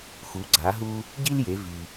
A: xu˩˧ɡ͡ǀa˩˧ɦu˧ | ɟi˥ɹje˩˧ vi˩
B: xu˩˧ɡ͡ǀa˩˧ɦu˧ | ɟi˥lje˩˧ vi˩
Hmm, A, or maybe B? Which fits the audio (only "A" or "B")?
B